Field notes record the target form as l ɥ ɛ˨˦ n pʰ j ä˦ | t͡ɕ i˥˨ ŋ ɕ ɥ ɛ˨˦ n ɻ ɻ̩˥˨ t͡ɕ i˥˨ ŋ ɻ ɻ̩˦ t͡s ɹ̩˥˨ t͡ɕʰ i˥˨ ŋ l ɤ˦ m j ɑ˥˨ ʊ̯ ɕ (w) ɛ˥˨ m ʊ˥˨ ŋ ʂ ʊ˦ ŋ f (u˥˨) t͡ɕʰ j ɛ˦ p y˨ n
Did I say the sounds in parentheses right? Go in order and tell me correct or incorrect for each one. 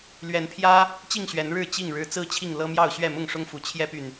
incorrect: ɥ, incorrect: u˨˦

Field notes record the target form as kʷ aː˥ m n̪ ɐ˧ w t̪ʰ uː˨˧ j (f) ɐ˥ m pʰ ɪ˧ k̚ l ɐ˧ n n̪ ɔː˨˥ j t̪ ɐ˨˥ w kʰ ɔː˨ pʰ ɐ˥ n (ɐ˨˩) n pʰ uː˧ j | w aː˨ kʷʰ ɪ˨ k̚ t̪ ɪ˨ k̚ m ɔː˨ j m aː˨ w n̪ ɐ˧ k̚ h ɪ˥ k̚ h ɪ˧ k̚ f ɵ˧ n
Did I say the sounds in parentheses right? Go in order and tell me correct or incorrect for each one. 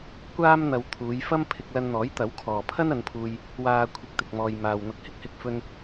correct, incorrect: ɐ˨˧

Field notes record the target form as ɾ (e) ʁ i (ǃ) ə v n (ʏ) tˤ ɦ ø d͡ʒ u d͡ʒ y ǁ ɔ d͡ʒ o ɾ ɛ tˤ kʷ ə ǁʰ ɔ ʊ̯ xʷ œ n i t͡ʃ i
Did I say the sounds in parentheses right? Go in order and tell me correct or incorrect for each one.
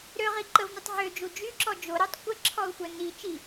incorrect: ø, correct, incorrect: y

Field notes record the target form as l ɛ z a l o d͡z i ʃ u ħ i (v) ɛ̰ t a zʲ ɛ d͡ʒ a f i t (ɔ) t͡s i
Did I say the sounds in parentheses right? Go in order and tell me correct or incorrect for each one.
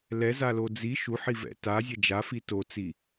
correct, incorrect: o

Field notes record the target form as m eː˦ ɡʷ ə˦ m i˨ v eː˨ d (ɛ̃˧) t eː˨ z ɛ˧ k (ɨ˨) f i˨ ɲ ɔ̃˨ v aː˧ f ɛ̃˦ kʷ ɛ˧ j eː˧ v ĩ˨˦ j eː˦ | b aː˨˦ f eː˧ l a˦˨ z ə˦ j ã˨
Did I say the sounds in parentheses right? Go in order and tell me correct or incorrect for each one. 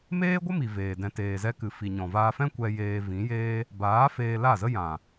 incorrect: ɛ̃˨, correct

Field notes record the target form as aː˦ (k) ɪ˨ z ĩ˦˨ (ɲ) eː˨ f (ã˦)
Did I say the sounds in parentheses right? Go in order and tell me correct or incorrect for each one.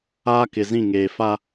correct, incorrect: ŋ, incorrect: a˦

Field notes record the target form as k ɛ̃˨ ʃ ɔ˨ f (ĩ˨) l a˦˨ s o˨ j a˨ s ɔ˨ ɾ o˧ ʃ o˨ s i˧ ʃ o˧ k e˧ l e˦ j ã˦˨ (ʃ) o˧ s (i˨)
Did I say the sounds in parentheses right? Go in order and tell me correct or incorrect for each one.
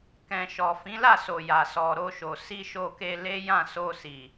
incorrect: ĩ˨˦, incorrect: s, correct

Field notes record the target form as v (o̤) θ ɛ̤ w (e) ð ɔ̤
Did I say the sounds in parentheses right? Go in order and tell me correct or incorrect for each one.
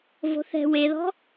correct, correct

